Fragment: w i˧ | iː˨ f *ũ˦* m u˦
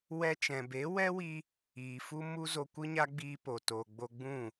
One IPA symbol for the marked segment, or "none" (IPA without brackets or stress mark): u˦